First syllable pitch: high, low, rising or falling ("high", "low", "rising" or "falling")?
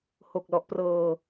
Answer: low